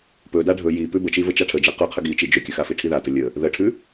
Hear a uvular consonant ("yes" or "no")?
yes